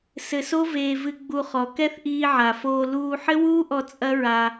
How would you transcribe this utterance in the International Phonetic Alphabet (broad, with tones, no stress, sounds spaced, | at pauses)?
s ɘ˧ s o˦ v eː˧ v ɨ˧ ɡ͡b u˧ χ ɔ˨ k ɛ˦ θ ʔ iː˧ ʕ a˨ f oː˧ l uː˧ ħ ɘ˦ w uː˦ ʔ ɔ˧ t͡sʼ ɐ˦ ɹ a˧